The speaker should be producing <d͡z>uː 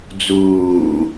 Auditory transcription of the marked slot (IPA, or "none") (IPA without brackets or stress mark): d͡z